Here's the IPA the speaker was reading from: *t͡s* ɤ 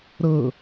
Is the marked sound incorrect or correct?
incorrect: ɾ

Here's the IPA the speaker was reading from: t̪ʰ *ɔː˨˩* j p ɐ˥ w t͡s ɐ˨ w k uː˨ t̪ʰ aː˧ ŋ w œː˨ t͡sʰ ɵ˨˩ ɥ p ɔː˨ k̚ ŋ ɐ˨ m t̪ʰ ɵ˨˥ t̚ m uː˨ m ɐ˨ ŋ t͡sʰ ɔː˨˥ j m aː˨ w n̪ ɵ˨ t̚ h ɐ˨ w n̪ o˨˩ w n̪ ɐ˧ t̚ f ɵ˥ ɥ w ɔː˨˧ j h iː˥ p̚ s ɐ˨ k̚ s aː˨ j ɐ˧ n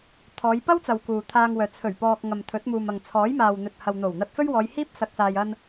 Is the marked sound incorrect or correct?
incorrect: ɔː˨˧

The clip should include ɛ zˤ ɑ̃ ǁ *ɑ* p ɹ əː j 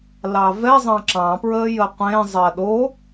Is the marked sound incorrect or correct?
incorrect: ɑ̃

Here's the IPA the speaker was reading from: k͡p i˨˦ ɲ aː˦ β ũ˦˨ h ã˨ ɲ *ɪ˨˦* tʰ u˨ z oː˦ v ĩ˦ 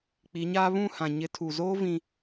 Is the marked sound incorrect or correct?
correct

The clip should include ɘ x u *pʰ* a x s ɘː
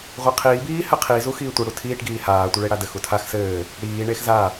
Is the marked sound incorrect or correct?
incorrect: tʰ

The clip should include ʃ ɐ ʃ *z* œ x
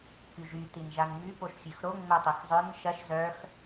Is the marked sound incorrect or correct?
correct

